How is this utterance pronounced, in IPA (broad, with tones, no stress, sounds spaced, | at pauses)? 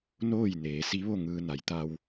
n oː˥˨ j n eː˩˧ s i˧˥ ʋ o˥˨ ŋ ɯː˧ n a˩˧ j t̪ a˧ w